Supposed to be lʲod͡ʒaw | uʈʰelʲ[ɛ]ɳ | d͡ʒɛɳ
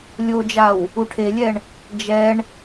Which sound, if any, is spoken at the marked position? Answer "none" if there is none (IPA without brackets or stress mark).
ɛ